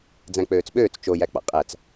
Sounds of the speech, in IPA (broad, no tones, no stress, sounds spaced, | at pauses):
d͡z æ̃ k͡p øː t͡s ɓ øː t͡s t͡ʃ o j æ k͡p ɑ̰ qʼ æ t͡s